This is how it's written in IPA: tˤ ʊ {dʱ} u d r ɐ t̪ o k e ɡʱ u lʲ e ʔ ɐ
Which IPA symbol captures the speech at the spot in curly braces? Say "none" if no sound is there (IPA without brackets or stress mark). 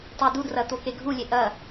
d